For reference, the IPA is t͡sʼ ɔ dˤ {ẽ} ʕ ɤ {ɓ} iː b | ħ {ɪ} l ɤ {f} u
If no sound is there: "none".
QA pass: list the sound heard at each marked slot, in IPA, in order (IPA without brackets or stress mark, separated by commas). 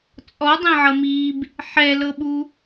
ẽ, m, ɛ, ɓ